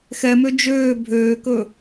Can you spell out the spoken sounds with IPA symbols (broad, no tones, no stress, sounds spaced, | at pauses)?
x ɛ m ø d͡ʒ øː bʱ øː k ɵ